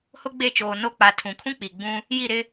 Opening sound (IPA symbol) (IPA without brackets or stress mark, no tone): h